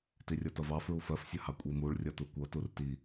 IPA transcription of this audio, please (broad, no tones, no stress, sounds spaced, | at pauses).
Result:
t i rʲ ʌ t ʌ v ɑ f ɹ u f ɜ f sʲ ə h ɑ kʷʼ i m u ɭ rʲ ʌ t u kʷ ʌ t u r t i